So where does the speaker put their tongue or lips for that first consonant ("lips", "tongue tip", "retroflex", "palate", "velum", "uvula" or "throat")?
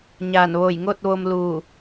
palate